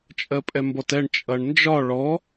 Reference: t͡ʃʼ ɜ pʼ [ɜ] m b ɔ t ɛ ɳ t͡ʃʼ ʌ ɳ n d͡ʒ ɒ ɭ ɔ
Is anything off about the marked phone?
yes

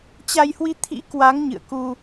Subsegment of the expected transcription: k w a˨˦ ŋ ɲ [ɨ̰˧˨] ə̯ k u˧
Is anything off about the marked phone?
no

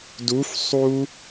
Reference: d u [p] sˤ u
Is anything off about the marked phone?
yes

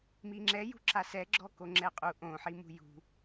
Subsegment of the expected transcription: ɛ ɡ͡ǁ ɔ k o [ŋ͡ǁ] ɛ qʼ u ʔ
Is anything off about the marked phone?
no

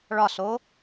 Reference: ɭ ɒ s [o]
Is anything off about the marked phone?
no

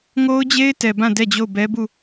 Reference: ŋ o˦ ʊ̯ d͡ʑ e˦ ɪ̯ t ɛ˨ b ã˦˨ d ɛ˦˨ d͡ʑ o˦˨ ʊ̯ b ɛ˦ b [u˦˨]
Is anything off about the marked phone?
no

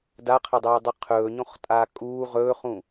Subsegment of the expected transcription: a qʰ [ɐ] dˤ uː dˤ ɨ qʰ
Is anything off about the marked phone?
no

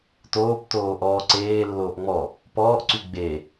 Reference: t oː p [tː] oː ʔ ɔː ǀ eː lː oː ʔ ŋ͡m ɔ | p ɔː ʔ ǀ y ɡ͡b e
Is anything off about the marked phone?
yes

